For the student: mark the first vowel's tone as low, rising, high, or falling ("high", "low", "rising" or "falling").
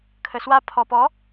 low